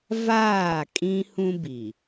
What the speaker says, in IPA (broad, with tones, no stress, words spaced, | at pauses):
vaː˦˨kʼĩ˦hũ˦bi˨